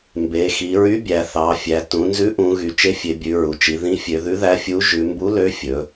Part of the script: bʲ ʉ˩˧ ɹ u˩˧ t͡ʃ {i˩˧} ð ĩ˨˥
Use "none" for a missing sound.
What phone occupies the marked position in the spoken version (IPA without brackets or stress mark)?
i˩˧